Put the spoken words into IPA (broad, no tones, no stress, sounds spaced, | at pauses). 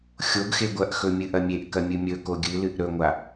xʲ o ɡ x e ɡʷ ɐ ʔ x ɵ mʲ ɨ ʔ ɐ mʲ e ʔ k ɐ mʲ ɨ mʲ ɵ k o ɡʲ ɨ l ɨ ʔ ɾ ɵ ŋʷ a